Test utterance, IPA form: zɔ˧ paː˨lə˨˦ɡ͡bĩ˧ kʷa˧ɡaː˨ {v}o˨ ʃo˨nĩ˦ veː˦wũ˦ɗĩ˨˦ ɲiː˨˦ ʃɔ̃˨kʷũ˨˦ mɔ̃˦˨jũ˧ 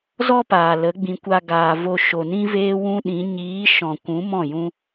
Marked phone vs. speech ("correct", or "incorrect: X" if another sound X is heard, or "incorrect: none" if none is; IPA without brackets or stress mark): correct